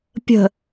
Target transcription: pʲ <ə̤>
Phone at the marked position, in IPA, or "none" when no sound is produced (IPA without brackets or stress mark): ə̤